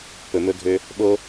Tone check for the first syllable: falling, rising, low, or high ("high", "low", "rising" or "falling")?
low